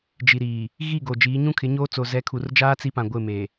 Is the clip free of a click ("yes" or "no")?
yes